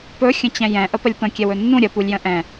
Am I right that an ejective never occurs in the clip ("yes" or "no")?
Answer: yes